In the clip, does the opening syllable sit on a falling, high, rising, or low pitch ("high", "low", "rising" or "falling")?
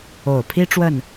low